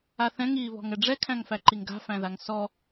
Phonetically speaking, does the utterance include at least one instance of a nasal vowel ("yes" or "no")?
yes